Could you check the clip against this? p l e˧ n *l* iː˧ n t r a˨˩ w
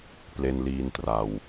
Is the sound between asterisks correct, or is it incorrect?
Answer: correct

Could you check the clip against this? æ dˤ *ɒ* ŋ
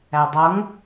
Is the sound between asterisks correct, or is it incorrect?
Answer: incorrect: ʌ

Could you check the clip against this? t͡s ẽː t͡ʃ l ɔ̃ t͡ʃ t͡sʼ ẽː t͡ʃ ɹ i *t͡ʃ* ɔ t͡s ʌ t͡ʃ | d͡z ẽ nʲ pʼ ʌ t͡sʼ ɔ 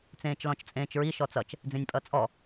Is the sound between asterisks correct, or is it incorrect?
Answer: incorrect: ʃ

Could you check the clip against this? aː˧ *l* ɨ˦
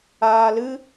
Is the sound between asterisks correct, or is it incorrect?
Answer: correct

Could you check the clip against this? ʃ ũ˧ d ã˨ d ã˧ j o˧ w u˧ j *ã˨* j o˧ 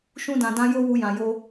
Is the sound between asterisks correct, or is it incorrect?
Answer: correct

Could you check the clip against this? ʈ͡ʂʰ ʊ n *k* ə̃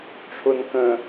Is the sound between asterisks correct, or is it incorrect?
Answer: correct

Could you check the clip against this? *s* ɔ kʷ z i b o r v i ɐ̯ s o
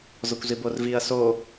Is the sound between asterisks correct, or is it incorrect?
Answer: incorrect: z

